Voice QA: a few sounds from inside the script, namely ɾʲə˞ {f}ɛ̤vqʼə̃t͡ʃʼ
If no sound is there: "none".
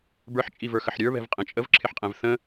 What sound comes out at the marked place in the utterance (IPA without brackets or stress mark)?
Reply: β